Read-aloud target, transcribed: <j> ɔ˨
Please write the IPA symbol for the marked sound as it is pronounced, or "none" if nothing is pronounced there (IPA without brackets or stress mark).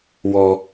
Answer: w